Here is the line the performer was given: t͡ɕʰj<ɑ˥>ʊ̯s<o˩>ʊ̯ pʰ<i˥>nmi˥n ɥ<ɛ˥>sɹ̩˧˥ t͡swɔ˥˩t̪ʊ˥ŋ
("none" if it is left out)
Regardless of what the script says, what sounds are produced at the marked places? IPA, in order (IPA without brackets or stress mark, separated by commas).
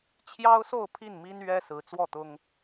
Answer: ɑ˥, o˥˧, i˥˩, ɛ˥